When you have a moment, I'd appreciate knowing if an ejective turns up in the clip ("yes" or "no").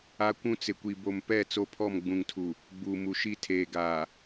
no